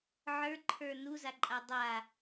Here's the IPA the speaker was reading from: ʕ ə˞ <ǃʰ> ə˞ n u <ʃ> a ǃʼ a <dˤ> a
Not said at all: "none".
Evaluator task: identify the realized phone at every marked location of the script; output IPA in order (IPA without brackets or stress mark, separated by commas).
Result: ǃʰ, z, dˤ